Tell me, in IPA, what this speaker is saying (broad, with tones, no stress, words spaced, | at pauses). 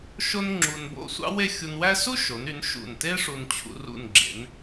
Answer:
ʃo˥nŋ͡ǁu˧nbo̰˥˧ sʷɑ̰˥we˥˧xʲu˧nwæ˥ su˥ʃo˩˧ny˩˧n ʃṵ˧˩nte˥ ʂu˧nt͡ɕʰṵ˧ rṵ˧˩nɡ͡ǁḛ˩˧n